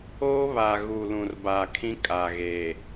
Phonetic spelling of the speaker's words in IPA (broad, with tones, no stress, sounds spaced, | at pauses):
oː˦ β a˨ ɣ uː˨ l ũ˨ r b a˨ kʰ ĩ˦ kʼ a˨ ɣ e˨